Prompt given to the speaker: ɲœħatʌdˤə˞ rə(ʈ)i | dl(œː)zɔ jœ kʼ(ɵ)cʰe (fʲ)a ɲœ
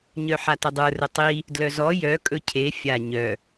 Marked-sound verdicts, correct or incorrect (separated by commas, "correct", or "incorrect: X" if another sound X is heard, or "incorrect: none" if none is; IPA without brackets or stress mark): incorrect: tˤ, incorrect: œ, correct, correct